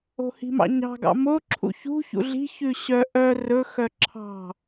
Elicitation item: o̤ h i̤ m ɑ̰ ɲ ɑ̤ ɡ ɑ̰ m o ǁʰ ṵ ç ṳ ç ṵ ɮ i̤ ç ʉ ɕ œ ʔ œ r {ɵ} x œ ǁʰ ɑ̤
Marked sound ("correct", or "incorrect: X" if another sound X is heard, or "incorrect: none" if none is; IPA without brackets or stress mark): correct